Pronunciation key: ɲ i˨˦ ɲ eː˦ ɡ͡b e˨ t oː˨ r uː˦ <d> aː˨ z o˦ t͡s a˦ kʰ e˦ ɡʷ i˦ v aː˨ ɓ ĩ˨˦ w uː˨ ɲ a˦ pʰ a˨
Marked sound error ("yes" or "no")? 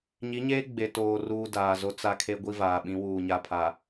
no